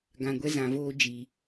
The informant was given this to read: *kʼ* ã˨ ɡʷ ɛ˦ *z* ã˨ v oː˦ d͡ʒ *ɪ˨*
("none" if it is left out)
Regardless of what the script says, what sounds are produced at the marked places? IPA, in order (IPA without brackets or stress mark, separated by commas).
ɡ, z, i˨